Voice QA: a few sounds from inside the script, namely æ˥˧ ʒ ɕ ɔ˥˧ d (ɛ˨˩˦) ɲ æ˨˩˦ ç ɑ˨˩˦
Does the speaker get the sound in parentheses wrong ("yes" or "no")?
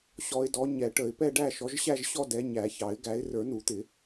yes